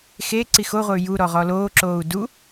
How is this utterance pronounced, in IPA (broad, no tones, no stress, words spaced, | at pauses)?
xeǀi xoʁʷɘy̯ juɾɔʁɔ loːǁoːu̯ du